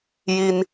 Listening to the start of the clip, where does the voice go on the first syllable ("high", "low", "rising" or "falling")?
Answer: high